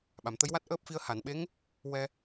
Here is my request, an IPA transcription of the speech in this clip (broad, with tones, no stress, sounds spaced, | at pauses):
ɓ a˨˩˨ m t̪ ə˧˥ j w a˦˥ t̚ ʔ əː˦˥ p̚ f i˧ ə̯ h a˨˩˨ n ɓ e˧˥ ŋ | w ɛ˧